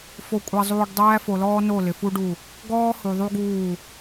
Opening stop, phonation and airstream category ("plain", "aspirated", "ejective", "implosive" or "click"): ejective